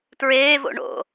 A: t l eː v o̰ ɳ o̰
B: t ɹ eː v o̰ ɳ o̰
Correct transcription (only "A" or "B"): B